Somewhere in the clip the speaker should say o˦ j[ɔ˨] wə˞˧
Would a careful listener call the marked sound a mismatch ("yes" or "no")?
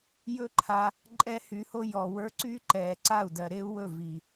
no